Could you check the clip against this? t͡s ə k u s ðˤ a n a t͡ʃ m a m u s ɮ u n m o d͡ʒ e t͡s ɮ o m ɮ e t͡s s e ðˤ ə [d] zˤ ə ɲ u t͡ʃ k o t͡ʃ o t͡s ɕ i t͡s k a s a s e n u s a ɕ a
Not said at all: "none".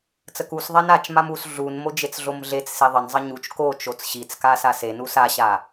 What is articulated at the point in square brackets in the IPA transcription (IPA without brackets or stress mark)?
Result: n